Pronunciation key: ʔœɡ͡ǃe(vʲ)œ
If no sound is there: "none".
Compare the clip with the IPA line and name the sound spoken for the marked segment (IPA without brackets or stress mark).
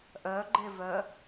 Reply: v